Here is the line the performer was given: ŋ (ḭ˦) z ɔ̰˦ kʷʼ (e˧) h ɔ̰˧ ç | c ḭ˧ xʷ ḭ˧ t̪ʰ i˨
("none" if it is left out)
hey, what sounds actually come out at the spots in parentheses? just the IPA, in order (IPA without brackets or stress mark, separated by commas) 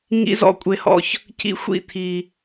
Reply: ḭ˦, e˧